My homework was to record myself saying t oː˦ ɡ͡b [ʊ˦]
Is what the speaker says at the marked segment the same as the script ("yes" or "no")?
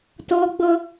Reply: yes